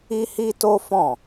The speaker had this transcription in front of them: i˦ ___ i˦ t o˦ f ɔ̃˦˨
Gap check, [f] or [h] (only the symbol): h